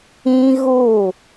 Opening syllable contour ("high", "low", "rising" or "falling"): high